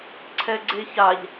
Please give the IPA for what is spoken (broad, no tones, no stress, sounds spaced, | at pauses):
ǀʰ ɛ ɡ͡ǀ e ç a ʎ